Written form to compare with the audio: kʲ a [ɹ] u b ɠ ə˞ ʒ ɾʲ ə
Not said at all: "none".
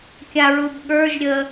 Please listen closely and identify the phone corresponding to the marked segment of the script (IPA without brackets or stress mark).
ɹ